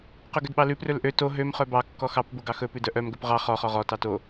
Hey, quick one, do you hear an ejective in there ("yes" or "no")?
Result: no